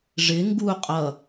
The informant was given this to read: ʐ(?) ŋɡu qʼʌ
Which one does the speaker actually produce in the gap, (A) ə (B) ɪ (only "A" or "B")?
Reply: B